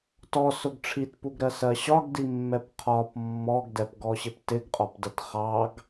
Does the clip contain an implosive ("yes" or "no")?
no